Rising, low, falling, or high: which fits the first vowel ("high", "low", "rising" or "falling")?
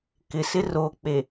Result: low